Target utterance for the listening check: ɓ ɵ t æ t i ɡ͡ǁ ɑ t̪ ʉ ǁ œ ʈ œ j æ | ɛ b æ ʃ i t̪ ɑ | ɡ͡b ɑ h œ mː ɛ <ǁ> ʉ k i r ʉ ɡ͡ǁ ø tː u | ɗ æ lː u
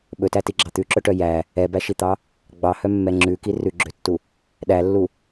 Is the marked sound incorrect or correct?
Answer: incorrect